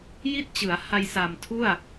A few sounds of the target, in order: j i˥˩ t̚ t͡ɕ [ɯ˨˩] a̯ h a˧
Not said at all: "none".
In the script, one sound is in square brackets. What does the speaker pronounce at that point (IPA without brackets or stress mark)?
ɯ˩˦